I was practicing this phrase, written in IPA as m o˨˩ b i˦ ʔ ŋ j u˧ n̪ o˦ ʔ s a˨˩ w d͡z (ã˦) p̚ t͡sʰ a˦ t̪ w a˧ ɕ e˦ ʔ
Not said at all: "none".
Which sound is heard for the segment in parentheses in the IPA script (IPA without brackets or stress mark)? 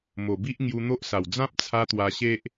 ã˦